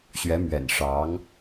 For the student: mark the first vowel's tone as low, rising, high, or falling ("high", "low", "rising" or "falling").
rising